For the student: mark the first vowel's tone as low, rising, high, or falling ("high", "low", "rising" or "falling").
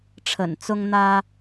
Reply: low